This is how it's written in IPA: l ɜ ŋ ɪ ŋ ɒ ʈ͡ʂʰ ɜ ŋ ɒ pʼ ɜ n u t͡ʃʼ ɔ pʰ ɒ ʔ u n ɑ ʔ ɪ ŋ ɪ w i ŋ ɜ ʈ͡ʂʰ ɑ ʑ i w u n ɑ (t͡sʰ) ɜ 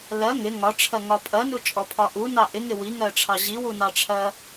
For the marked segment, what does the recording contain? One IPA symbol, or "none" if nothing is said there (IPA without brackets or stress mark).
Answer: ʈ͡ʂʰ